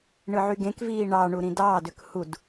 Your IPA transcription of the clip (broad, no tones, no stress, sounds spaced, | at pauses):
ɳ ɯ ʕ y ɡ ẽ k v iː ɳ ɑ ɳ u ɾ ĩ d ɑː d ø k h u d